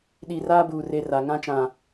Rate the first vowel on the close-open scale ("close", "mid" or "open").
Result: close